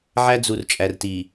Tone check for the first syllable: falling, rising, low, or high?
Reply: high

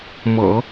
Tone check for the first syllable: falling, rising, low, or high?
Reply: low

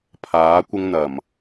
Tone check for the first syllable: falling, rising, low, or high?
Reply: rising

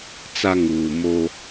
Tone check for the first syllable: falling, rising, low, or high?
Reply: high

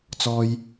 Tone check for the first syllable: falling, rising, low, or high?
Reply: low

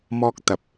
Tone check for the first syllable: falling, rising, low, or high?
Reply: high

